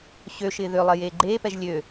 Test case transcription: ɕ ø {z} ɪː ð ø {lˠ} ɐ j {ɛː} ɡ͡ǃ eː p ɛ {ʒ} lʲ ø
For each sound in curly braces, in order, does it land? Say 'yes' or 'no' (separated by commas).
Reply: no, yes, no, yes